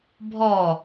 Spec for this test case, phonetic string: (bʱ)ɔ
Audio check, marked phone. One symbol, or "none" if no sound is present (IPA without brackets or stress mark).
bʱ